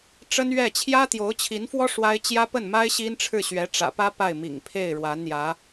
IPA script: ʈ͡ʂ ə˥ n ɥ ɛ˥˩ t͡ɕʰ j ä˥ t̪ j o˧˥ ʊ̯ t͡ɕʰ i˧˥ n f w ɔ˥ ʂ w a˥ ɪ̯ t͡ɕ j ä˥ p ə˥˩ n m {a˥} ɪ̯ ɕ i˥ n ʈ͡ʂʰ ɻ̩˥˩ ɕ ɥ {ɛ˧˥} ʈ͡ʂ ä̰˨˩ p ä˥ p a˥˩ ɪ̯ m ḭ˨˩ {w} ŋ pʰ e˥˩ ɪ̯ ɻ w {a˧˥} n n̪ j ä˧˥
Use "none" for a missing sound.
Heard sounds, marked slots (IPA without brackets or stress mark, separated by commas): a˥, ɛ˧˥, none, a˧˥